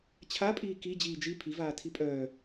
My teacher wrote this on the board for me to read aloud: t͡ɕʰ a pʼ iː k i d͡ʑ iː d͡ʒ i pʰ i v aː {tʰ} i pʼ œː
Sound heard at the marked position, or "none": tʰ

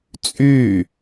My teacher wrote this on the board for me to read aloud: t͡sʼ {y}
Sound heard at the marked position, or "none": y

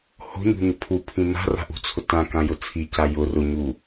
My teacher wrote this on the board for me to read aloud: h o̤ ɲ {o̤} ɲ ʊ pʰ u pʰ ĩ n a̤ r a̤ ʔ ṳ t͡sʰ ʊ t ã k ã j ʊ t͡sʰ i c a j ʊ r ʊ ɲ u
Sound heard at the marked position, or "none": ṳ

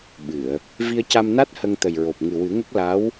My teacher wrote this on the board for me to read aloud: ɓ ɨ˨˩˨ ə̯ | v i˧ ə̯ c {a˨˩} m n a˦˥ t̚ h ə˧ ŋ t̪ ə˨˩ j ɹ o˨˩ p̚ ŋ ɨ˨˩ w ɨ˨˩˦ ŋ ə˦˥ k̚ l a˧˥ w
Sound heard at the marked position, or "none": a˧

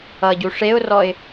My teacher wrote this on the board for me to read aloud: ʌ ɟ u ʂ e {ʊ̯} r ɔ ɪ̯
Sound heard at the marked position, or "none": ʊ̯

